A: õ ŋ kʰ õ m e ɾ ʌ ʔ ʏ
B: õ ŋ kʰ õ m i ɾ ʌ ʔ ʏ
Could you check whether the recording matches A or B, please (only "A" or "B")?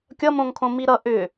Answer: B